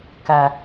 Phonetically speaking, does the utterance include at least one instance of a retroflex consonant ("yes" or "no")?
no